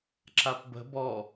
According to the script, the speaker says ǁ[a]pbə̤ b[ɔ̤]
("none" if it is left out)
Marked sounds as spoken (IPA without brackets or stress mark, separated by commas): a, ɔ